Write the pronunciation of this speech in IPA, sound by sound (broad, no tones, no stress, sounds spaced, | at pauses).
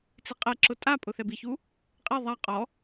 t͡s i qʼ ɛ ǁ ʊ tʼ a pʼ ʊ θ ɛ b i ç u | qʼ e ðˤ a qʼ ɔ